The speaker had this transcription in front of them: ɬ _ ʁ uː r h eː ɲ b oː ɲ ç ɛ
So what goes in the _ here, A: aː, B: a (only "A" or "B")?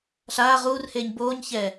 A